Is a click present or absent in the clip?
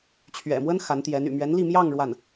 absent